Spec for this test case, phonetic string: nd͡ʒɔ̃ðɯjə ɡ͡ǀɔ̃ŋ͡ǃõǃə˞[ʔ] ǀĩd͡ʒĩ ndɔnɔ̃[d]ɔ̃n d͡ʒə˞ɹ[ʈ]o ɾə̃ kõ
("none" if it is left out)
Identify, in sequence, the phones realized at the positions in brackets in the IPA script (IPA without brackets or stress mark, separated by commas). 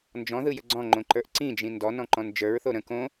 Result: ʔ, ǃ, θ